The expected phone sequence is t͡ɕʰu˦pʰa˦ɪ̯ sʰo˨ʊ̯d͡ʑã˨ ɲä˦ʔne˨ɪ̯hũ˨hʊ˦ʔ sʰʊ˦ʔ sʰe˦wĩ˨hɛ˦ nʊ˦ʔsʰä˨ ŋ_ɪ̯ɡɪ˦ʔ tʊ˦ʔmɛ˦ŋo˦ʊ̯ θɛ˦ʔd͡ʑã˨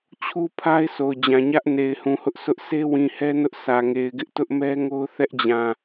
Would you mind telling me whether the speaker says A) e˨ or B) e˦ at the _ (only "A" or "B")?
A